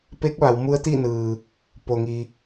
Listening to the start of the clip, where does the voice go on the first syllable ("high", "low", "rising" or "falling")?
rising